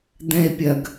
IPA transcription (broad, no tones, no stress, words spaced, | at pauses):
d̪ɛ̃e̯pʲɐɡ